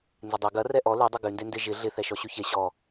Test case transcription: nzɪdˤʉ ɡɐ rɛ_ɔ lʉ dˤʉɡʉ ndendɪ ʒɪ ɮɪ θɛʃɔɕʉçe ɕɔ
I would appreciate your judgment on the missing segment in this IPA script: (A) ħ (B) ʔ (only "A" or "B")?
B